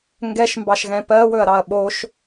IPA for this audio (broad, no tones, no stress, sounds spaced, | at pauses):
ŋ ɡ ɛ ʃ m b ɑ ʃ ɣ ɛ̃ p ɜ w ɵ ɐ̯ ɾ ɑ ɐ̯ ɓ o ʃ